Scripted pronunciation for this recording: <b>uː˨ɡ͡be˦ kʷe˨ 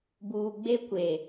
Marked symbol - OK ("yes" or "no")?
yes